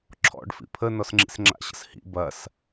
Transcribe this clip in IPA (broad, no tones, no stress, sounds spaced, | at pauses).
ǁʰ ɔ̰ ɖ f ḭ pʰ ə n ɔ s ŋ͡ǁ ḭ s ŋ͡ǁ a̰ ɕ ə̰ s h ḭ b ɐ s